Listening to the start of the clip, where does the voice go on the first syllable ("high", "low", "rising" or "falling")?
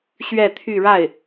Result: falling